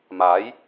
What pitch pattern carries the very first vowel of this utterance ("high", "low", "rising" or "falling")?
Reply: rising